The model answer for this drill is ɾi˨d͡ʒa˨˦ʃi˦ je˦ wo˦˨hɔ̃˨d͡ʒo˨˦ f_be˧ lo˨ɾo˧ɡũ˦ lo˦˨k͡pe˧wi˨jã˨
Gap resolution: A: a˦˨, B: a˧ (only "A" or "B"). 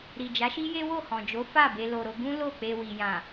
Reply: A